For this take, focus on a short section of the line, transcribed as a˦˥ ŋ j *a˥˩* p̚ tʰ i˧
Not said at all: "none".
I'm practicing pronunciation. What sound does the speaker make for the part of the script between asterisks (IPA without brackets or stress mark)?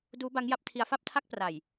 a˦˥